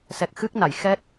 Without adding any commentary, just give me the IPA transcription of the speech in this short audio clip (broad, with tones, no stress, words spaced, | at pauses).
sɛ˨˩k̚xɨ˦˥k̚na˨˩˨jxɛ˦˥t̚